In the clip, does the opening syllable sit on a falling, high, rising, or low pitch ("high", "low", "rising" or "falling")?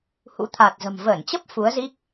rising